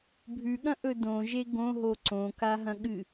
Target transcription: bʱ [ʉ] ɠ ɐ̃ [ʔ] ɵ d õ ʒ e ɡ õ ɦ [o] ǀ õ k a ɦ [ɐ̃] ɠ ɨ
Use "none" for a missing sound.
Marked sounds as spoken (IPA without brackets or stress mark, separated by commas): ʉ, ʔ, o, ɐ̃